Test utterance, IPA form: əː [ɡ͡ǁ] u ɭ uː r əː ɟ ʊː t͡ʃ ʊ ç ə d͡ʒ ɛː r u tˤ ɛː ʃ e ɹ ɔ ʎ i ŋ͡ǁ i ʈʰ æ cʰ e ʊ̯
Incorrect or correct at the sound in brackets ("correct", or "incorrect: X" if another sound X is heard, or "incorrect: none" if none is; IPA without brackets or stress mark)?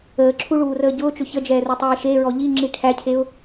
incorrect: ǁʰ